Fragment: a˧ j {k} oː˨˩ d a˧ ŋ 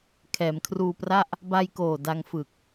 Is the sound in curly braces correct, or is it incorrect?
correct